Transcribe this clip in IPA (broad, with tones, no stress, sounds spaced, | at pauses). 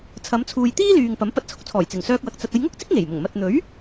t͡sʰ ɐ˨˧ m t͡sʰ uː˨ j t̪ iː˥ l yː˨ ŋ p ɐ˨˥ m p ɐ˧ t̚ t͡sʰ ʊ˥ k̚ t͡sʰ ɔː˨˩ j t͡s ɪ˨˩ ŋ s œː˧ k̚ w ɐ˨ k̚ t͡s ɐ˨ t̚ ɐ˧ j ŋ ʊ˥ k̚ t͡s ɪ˥ k̚ ŋ e˨˩ j m ʊ˨˩ ŋ m ɐ˨ t̚ n̪ ɵ˨˥ ɥ